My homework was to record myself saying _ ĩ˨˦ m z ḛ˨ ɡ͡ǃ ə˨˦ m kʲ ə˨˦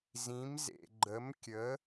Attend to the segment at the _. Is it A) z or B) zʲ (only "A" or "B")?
A